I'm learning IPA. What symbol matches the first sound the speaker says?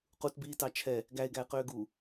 q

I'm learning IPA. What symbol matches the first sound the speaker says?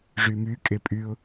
ʐ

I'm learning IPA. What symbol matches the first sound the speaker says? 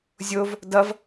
zʲ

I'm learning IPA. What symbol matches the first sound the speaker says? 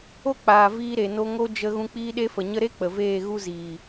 o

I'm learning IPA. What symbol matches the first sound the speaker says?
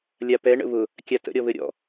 lʲ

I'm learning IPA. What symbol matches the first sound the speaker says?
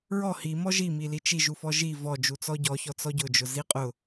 ɹ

